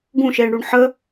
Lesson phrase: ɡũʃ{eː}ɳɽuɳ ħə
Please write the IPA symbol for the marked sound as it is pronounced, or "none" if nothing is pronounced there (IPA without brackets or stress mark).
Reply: eː